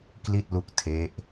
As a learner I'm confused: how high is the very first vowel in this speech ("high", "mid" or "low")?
high